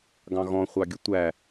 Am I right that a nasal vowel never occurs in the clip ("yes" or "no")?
no